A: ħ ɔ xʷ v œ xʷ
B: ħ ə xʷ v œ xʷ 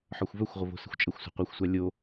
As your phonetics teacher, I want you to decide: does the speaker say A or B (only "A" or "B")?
A